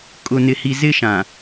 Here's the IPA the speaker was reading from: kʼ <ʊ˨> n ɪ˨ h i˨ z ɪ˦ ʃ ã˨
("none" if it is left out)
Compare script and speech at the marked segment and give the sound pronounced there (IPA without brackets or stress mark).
ʊ˨